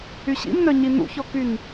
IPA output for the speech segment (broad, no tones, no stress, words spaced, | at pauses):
yɕḭmnœɲi nṵçɔkyn